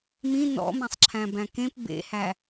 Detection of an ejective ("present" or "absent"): absent